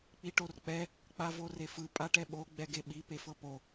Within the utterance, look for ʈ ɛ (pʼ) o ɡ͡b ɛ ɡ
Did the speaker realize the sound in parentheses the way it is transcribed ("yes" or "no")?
no